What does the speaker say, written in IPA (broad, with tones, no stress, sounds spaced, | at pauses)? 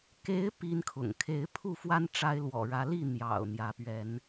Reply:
k e˨˦ ɪ̯ p i˦ n kʰ ʊ̰˨˩ ŋ kʰ e˨˦ ɪ̯ pʰ u˥˨ f w a˦ n ʈ͡ʂ a˦ ɪ̯ l w ɔ̰˨˩ ɻ ä˨˦ l i˥˨ n̪ j ɑ̰˨˩ ʊ̯ n̪ j ä˨˦ p ɥ ɛ˨˦ n